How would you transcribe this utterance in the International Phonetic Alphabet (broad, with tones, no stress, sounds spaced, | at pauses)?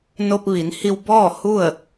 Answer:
n o˧ p̚ ʋ i˩˧ n h i˧ w b ɔː˥˨ h u˥˨ ə̯